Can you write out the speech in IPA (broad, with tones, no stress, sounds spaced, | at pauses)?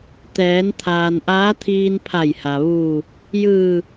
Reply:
t̪ ɛː˩˧ n t̪ʰ aː˩ n ʔ aː˧˥ t̪ʰ iː˧ n pʰ a˧˩ j h a˩ ʋ uː˧˩ | j ɯː˧˩